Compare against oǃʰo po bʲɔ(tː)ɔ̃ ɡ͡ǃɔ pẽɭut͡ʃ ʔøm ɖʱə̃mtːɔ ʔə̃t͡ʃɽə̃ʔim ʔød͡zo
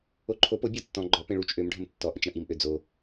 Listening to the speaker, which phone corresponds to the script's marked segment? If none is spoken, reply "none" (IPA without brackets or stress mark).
tː